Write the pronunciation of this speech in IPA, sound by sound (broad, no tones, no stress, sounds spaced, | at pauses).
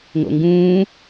ŋ o̰ ŋ ɡ ũː